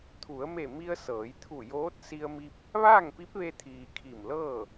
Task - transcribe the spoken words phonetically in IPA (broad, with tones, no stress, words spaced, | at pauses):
t̪ʰu˩˧ə̯me˧˩mi˧ə̯ sɤː˩˧jt̪ʰu˧˩joː˧˥t̚si˧ə̯ mi˧p̚ | ʋaː˥˨ŋpi˧˥p̚ʋe˧t̪ʰiː˩ kʰi˧˩mlɤː˥˨